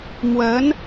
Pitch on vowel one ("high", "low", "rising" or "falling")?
rising